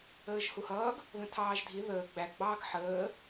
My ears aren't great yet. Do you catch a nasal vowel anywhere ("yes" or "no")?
yes